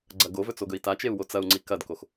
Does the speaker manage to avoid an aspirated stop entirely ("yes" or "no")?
yes